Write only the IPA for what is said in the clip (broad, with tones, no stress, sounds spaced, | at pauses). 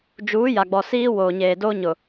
d͡ʒ uː˨˦ j a˨ ɡ͡b ɔ˨ s iː˦ w oː˨ ɲ eː˨ d oː˦ ɲ ʊ˨